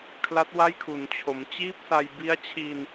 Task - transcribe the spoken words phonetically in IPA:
kʰ l a˦˥ t̚ w a˥˩ j kʰ u˩˦ n t͡ɕʰ o˩˦ m t͡ɕ iː˥˩ p̚ s a˧ j b i˦˥ a̯ t͡ɕʰ i˧ n

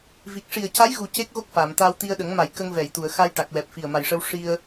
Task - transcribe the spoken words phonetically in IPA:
v i˨˩ k̚ ʂ i˨˩ ə̯ c a˧˥ j ɣ u˨˩ c e˦˥ k̚ ɣ o˦˥ k̚ f aː˨˩˨ m t̪ aː˧ w t̪ i˧ ə̯ ɗ ə˨˩˦ ŋ m a˨˩˨ j k ə˧ ŋ v ɛ˨˩˨ j t̪ u˨˩˨ ə̯ x a˧ j ʈ a˨˩ k̚ w ɛ˨˩ p̚ f i˨˩ ə̯ m a˨˩ j ʂ ə˧ w ʂ i˧ ə̯

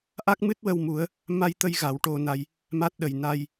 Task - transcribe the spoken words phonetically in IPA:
ʔ a˦˥ k̚ m ɨ˦˥ t̚ w ə˧ w m u˨˩˦ ə̯ | m a˧ j t̪ ə˧ j ɣ a˨˩˦ w ʈ o˧ n a˧ j | m a˦˥ t̚ ɗ ə˨˩ j n a˧ j

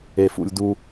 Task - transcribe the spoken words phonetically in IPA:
e˩ f ṵ˩ lʲ d u˨

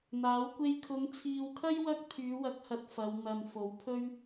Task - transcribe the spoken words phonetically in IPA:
n̪ aː˨˥ w kʷ e˥ j kʰ ʊ˨˧ ŋ t͡sʰ iː˨ w kʰ ɐ˥ j w ɐ˥ k̚ t̪ʰ yː˨˧ w ɐ˨˥ k̚ h ɐ˧ t̚ f ɐ˨˧ w n̪ ɐ˨ n f o˨˥ w pʰ ɵ˥ ɥ

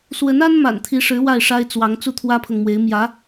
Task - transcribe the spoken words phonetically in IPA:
s w ə˧˥ n a˥ n m a̰˨˩ n t̪ʰ i˧˥ ʂ ɻ̩˧˥ w a˥˩ ɪ̯ ʂ a˥ ɪ̯ t͡s w ɑ˧˥ ŋ t͡s u˥˩ t̪ʰ w ä˥ pʰ ɤ˨ ŋ m w e˧˥ ɪ̯ m j ä˧˥

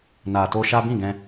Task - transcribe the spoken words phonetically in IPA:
n a˨ t o˧ ʃ a˦ b ĩ˦˨ ɡ ɛ̃˧

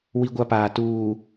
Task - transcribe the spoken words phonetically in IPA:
w i˦ ɡʷ a˦ p aː˨ t uː˨

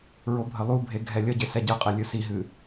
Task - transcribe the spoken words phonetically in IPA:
ɹ o bʱ ə lˠ u bʱ e ɡʱ ɛ lʲ ə ɟ e s ɛ ɟ ɨ qʼ e lʲ ɨ s i ɦ ɨ

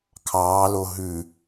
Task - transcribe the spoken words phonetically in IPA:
kʰ ɑː l o ɦ ʉ

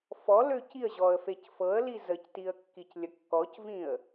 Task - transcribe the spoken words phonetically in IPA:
f ɔ l ø c i ə̯ ʑ ɔ ə̯ f e c f ɤ ə̯ l i z ə c t i ə̯ kː i c lʲ ə kː ɔ c v ĩ ə̯

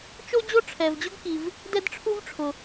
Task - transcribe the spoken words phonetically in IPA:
t͡ʃ o˥ d͡ʑ o˥ ʈ͡ʂʰ ɛ˩ v d͡ʑ ʊ˥ ɡ k i˩ v | d ɛ˥ d ʈ͡ʂʰ u˥ v ʈ͡ʂʰ ʊ˩

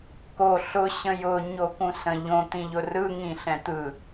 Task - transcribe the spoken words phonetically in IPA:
k o ɬ ʊ ɕ ə̃ j ʊ ɲ o k ũ s ə̃ ʎ õ t̪ ĩ ʎ ʊ r ɯ ŋ ĩ ɬ ɛ̃ t̪ ɯ

